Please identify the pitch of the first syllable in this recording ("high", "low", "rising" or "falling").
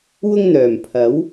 high